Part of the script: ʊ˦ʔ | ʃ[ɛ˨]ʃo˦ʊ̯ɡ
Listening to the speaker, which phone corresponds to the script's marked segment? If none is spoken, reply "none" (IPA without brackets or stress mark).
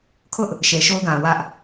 e˨